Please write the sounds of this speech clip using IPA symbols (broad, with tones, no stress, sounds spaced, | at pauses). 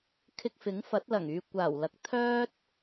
kʰ ɪ˧ k̚ f ɪ˨˥ ŋ f ɐ˨˥ t̚ l ɐ˨˩ ŋ yː˨ kʷ aː˨˩ w l ɐ˨˥ k̚ t̪ʰ œː˥ t̚